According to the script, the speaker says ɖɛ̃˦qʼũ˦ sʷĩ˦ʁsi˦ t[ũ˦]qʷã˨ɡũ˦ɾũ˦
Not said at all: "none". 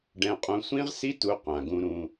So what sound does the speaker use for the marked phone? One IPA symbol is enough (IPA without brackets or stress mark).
u˦